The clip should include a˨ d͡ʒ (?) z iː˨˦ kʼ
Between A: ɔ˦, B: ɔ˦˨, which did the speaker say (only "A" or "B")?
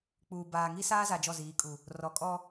B